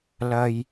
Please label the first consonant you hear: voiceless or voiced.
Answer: voiced